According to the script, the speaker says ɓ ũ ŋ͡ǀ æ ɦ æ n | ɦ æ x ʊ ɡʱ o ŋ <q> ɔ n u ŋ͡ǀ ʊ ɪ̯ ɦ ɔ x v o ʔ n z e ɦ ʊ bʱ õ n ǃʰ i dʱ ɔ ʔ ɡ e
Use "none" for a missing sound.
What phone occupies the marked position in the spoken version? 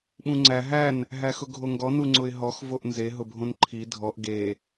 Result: ɡ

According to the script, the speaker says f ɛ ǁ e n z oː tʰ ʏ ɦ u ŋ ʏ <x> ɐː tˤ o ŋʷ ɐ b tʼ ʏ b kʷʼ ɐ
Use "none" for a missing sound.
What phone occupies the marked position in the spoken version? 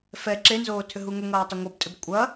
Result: ŋ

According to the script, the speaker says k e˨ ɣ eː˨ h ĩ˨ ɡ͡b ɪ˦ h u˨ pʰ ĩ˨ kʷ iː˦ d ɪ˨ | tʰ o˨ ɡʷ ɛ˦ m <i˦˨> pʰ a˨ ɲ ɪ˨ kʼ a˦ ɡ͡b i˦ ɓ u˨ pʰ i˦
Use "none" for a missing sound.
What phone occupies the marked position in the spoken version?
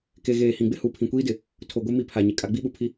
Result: i˦˨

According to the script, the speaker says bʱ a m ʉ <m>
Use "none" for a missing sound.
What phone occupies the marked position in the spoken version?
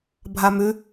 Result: none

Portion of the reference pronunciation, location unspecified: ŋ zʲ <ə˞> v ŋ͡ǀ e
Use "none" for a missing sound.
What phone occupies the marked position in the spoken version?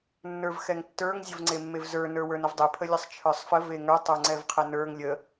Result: ə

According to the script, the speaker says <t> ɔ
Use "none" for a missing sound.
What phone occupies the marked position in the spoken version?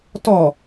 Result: t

